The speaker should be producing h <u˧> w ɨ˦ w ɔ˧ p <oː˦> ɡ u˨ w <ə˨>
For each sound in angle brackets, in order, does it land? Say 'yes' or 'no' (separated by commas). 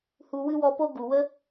yes, no, no